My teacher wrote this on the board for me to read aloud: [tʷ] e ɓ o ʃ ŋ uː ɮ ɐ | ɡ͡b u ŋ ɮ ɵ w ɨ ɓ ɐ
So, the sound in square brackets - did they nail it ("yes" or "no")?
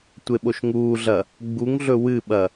yes